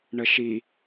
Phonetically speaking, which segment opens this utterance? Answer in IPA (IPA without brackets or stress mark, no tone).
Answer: ɳ